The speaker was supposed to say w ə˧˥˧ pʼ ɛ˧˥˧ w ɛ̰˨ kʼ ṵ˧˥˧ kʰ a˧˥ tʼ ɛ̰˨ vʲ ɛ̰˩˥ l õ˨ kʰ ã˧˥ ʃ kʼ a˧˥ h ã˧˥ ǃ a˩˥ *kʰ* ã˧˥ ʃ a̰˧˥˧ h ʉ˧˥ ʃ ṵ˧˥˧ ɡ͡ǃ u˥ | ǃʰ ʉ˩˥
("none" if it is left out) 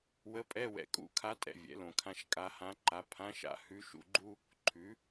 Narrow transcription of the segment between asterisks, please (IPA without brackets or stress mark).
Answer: pʰ